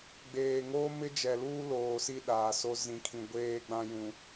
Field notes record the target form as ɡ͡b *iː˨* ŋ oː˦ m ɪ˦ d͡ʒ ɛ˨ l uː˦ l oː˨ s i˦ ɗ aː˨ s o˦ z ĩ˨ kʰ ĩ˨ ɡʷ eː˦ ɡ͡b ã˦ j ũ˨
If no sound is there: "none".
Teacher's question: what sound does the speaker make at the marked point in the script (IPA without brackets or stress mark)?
eː˨